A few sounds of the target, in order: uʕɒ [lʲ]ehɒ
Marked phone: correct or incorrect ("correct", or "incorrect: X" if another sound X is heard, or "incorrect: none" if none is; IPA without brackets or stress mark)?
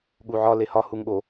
incorrect: l